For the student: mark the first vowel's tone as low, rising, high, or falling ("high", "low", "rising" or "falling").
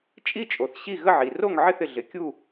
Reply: falling